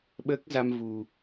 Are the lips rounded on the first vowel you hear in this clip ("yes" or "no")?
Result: no